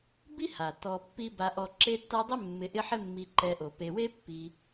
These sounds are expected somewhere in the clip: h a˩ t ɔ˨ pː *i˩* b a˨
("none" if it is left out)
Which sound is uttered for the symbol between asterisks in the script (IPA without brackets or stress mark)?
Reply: i˦